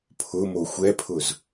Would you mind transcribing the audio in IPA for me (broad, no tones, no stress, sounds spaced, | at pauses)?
pʰ ʊ m o xʷ ɛ pʰ ʊ z